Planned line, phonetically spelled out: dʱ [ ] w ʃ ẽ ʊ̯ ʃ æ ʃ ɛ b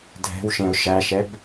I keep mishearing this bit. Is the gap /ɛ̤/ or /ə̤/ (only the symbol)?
ɛ̤